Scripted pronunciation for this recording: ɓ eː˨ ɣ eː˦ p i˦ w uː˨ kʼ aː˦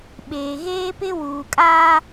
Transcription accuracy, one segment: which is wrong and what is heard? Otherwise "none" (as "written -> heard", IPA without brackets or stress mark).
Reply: i˦ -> ɪ˦